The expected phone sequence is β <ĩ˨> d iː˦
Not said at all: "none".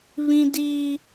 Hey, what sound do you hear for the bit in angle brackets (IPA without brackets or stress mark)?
ĩ˦